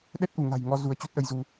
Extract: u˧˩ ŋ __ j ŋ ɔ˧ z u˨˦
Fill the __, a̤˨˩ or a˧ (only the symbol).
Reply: a̤˨˩